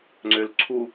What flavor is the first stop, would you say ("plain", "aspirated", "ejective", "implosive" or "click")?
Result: click